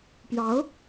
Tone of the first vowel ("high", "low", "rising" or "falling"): rising